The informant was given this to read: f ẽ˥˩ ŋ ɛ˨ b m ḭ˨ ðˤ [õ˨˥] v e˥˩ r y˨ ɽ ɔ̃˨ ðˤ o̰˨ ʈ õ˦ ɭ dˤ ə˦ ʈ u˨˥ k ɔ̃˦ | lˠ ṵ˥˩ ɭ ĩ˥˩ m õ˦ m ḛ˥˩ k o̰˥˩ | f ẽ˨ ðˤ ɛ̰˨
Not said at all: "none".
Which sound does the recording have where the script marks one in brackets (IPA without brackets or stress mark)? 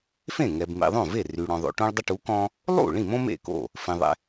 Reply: õ˥˩